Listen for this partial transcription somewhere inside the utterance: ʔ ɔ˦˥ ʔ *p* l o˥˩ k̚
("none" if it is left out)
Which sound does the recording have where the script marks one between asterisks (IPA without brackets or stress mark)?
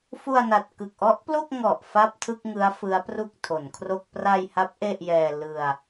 p